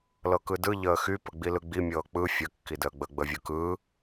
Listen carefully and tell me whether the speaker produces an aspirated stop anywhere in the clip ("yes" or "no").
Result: no